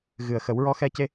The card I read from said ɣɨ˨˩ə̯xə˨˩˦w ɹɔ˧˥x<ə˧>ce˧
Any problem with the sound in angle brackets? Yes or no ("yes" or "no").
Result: yes